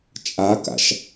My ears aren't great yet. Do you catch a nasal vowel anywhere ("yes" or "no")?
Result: no